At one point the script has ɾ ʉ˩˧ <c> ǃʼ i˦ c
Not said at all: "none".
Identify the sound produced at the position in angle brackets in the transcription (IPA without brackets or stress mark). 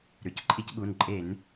c